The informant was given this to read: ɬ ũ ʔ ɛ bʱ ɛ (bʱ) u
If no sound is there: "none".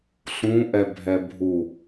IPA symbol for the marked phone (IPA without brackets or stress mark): bʱ